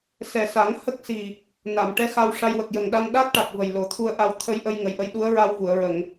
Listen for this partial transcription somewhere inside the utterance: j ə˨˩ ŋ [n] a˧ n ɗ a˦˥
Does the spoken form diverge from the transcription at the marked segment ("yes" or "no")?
yes